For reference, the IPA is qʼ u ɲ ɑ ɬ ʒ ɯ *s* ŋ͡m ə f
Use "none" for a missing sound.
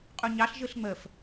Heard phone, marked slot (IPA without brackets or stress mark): ɬ